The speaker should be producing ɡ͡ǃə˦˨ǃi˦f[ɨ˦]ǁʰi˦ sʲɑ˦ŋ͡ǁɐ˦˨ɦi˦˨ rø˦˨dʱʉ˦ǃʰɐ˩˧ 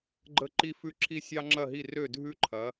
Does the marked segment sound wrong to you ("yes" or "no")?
yes